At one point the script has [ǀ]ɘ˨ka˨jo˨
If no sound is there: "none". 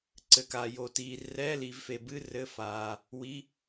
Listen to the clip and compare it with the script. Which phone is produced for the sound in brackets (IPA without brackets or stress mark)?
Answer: ǀ